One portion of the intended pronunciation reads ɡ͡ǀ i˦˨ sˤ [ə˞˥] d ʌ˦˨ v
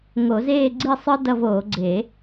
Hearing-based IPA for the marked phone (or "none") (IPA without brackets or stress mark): ə˞˥